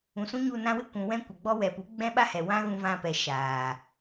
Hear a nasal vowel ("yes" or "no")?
yes